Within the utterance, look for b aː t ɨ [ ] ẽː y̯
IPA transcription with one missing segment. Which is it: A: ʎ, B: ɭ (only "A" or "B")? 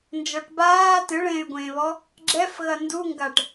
B